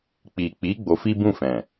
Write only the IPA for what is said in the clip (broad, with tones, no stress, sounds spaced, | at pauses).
k͡p i˨ k͡p i˨˦ ɡ͡b o˧ f i˦ b ũ˦˨ f ɛ̃˨